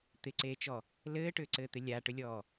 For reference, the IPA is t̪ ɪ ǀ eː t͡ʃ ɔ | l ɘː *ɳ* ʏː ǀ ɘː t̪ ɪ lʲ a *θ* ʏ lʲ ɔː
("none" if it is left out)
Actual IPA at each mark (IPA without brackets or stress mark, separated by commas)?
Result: ʈ, ʈ